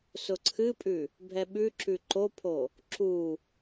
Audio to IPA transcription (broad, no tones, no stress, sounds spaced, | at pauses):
s ʊ ǀʰ ɨ pʼ ʉ | bʱ ɛ ɓ ʉ ǁ ʉ ǃ o pʰ o | ǁ u